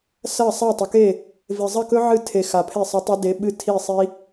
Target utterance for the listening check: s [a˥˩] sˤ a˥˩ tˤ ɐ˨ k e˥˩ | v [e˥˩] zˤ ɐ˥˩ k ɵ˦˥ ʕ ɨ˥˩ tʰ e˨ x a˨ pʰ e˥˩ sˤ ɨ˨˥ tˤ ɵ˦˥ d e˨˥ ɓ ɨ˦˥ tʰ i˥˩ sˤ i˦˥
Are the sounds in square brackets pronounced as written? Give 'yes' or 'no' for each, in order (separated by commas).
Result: no, no